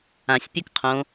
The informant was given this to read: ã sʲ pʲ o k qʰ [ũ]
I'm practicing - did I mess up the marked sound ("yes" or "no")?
yes